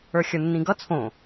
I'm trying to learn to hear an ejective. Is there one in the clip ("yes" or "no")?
no